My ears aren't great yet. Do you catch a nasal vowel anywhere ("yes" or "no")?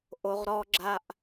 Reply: no